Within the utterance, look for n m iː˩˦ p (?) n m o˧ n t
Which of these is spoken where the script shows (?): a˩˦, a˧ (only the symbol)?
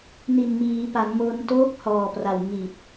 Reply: a˩˦